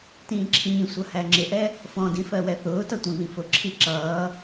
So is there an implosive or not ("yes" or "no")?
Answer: no